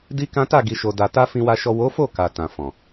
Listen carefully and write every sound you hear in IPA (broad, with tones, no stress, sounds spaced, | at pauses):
d i˦ k ã˦ t a˦˨ ɡ i˨ ʃ o˨ d a˨ t a˧ f ĩ˨ w a˨ ʃ ɔ˨ w o˨˦ f o˦˨ k a˨ t ã˨ f ɔ̃˨